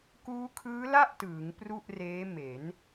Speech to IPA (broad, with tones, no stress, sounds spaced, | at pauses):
k uː˦˥ kʰ ɯː˦˥ l a˥˩ ʔ t ɯː˩˦ ŋ p r u˥˩ ʔ r eː˦˥ m e˩˦ n